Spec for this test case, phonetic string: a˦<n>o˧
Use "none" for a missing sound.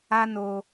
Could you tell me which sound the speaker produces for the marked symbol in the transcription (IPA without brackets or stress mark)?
n